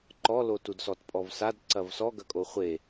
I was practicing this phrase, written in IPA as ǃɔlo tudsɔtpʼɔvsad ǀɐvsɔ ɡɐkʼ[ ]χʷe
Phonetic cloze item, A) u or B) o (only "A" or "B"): B